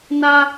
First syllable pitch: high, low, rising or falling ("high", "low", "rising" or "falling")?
high